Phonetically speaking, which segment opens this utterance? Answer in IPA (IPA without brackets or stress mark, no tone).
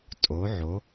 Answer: tʼ